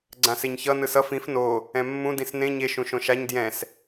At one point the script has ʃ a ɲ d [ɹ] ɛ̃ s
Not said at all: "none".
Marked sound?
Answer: j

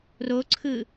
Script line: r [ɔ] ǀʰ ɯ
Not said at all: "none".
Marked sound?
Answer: o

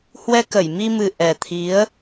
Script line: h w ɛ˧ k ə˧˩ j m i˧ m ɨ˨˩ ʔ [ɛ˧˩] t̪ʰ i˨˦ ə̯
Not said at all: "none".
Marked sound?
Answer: ɛ˨˩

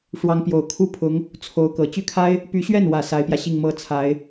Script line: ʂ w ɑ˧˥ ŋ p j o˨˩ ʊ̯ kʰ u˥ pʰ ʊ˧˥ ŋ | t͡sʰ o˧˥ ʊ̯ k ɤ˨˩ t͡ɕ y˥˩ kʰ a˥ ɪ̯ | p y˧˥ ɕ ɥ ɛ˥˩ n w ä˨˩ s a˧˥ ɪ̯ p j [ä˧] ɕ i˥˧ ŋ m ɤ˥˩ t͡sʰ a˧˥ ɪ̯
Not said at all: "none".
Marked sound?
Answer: ä˧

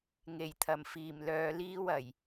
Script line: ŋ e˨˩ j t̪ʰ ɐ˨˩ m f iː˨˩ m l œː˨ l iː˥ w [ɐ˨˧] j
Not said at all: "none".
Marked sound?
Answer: ɐ˨˩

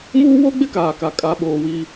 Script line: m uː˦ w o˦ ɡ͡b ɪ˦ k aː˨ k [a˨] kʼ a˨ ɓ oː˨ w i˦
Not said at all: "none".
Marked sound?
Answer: a˨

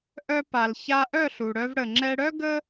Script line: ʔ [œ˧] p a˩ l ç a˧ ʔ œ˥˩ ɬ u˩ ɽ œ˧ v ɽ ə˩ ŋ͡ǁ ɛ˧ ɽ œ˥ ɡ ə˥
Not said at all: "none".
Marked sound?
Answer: œ˧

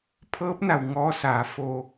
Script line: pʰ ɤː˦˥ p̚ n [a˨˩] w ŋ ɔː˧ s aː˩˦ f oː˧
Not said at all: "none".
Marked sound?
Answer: a˨˩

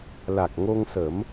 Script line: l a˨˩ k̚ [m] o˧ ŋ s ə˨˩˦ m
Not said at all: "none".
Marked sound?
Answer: ŋ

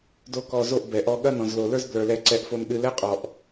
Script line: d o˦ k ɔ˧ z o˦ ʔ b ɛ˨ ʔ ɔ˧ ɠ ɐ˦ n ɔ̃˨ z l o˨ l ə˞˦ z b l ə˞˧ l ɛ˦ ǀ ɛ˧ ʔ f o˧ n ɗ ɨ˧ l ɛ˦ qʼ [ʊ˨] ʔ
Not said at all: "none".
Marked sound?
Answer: ɔ˨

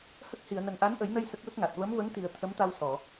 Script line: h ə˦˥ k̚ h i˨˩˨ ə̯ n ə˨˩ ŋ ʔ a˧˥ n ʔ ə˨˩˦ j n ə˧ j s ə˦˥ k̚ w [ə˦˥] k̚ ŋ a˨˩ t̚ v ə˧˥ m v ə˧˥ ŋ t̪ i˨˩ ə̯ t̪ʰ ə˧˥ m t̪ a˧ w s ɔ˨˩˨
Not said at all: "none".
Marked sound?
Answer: ə˦˥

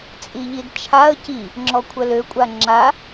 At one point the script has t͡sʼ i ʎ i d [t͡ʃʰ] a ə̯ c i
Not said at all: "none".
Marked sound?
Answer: t͡ʃʰ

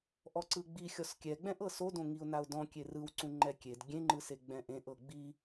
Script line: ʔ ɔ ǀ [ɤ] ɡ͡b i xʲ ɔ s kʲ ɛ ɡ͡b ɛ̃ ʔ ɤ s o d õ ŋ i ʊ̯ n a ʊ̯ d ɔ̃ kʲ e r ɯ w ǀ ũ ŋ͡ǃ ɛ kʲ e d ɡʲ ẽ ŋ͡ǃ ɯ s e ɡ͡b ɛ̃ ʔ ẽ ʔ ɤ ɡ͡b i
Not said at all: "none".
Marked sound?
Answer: ɯ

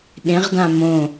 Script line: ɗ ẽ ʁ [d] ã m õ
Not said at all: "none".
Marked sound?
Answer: d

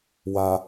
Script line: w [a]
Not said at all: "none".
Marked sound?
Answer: a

